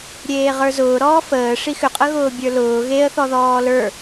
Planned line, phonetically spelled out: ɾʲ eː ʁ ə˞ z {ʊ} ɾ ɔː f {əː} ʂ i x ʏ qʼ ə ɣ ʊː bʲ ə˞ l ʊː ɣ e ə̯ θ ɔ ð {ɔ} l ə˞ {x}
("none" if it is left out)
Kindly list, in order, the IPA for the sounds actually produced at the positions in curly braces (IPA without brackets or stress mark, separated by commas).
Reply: ʊː, əː, ɔː, none